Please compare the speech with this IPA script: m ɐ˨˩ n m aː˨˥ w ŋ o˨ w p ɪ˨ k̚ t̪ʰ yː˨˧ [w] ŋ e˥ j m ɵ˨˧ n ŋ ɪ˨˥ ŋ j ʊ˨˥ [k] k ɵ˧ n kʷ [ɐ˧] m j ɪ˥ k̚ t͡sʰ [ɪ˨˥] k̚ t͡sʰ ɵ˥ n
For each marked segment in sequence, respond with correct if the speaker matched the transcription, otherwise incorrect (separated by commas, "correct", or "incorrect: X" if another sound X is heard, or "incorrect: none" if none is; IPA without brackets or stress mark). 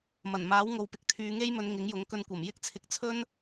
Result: incorrect: none, incorrect: ŋ, incorrect: ɐ˨˩, incorrect: ɪ˨